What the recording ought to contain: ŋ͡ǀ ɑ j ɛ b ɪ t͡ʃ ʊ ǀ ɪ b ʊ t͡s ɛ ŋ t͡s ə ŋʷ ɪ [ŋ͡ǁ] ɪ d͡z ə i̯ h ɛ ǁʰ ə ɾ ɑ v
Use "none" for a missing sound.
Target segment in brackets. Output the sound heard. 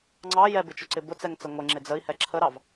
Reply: ŋ͡ǁ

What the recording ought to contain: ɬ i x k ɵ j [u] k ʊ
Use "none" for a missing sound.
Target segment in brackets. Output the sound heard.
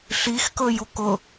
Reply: u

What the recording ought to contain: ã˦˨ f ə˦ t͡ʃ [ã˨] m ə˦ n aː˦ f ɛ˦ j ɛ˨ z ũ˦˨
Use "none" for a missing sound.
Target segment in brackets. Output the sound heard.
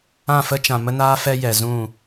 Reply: ã˨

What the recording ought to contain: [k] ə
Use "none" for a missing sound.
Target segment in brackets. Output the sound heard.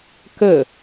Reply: k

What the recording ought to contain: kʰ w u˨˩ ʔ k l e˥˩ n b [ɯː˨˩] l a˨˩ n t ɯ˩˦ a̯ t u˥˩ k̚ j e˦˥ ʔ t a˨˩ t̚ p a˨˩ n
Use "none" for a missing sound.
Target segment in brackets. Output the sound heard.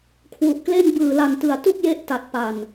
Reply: ɯː˨˩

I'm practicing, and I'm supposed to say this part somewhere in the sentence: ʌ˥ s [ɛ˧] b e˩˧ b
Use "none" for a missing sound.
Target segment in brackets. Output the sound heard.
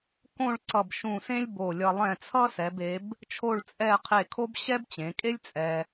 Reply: ɛ˩˧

